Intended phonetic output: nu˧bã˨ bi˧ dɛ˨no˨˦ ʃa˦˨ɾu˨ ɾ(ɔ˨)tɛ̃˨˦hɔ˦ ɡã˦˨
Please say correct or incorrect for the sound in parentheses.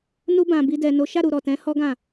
correct